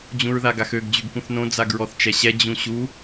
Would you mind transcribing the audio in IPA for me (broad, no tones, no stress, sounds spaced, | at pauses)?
d͡ʑ ũ ɹ ð a ɡ a x ø ɡ d͡ʑ y ɡ k ũ θ n õ d͡z a ɡ ɹ ɔ θ t͡ʃ ɛ ɕ ɛ d͡ʑ ũ ɕ u